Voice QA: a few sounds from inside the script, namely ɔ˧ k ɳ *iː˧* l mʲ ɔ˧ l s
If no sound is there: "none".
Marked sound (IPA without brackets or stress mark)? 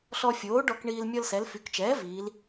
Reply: iː˧